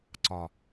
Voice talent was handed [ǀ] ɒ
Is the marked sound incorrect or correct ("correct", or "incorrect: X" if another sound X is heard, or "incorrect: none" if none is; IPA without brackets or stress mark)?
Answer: correct